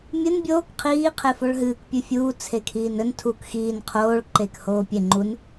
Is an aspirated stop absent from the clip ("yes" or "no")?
no